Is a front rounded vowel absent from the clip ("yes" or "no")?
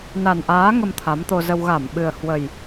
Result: yes